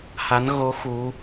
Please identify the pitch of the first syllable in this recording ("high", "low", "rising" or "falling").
rising